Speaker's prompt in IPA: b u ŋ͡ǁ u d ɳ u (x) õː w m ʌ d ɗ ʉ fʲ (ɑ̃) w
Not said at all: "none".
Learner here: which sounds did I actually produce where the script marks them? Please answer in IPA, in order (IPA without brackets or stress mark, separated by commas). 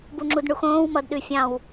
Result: x, ɑ̃